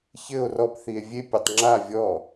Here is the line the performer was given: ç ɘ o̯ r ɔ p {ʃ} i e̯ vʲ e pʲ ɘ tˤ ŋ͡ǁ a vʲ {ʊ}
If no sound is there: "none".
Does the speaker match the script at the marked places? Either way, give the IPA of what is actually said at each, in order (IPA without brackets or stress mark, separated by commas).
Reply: θ, ɔ